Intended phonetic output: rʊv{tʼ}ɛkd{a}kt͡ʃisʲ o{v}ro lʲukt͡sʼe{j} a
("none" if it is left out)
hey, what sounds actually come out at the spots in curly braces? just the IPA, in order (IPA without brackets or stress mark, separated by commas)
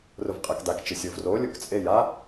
qʼ, a, v, j